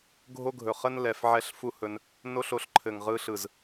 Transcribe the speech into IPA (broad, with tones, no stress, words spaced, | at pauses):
ɡʱo˦ɡʱɵ˨χə˦n lɛ˨f ʕɛ˦ɬfu˦hɵ˧n | no˦ɬo˧ɬ ǃʰɘ˨ŋʁɯ˧ɬɯ˨z